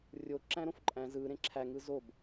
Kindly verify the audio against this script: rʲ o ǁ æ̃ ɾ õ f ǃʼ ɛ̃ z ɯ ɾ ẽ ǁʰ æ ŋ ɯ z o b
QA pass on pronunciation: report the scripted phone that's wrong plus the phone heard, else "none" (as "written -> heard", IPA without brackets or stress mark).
ɛ̃ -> æ̃